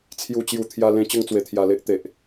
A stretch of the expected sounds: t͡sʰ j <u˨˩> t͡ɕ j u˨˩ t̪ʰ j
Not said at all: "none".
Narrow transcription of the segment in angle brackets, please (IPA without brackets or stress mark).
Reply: u˨˩